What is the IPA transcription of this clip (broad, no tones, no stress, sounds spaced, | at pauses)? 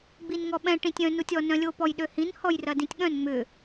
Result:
ɡ͡b i n ŋ ɔ ɓ ɛ̃ ʈ ĩ tʲ œ̃ n u tʲ ɔ n œ̃ lʲ o p ɔ j ɗ ø h ĩ n h ɔ j r ɐ d ĩ tʲ ɠ œ̃ n ŋ͡m ʏ